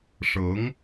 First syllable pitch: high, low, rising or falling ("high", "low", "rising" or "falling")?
rising